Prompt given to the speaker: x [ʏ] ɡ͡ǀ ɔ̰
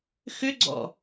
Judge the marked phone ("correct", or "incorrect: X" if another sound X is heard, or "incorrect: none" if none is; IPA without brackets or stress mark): correct